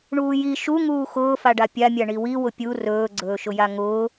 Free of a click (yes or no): no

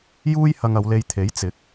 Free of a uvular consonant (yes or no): yes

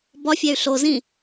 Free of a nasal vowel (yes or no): no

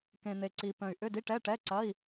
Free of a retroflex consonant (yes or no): no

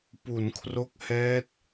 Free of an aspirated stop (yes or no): no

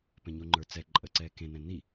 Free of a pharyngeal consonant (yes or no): yes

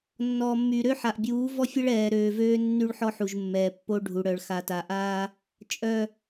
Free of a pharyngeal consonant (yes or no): no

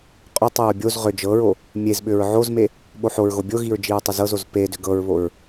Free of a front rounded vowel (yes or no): no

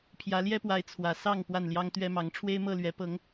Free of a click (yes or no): yes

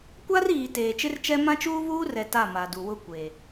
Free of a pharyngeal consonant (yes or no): yes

